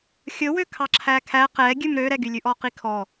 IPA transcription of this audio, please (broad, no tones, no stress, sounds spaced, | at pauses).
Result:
xʲ ɵ w ø kʰ ɑ ǁʰ æ kʰ æ q ɛ ɡʲ ʉ m ɾ ø ɾ ɛ ɡ y lʲ ʉ ʔ ɔ q i kʰ ɔ